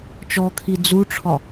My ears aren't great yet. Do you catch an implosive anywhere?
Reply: no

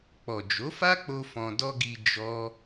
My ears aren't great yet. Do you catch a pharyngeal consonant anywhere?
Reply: no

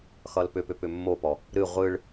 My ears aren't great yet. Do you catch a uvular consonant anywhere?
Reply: yes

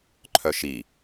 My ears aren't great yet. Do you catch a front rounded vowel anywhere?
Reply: yes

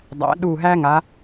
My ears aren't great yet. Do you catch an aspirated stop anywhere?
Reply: no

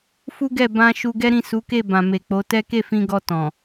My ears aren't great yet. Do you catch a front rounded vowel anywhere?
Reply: no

